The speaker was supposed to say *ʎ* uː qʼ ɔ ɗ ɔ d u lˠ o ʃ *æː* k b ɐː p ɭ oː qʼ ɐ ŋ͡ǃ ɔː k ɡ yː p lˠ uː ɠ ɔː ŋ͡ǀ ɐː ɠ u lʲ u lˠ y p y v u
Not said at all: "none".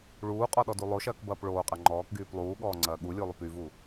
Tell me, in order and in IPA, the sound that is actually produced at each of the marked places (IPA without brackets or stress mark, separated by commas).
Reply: ɭ, ɐː